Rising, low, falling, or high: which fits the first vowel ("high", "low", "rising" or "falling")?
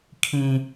high